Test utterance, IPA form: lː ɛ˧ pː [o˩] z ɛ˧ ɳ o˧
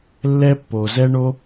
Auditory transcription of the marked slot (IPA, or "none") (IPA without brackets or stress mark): o˩